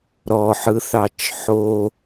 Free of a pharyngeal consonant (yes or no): no